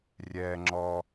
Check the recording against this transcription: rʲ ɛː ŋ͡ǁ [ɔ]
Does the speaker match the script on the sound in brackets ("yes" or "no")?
yes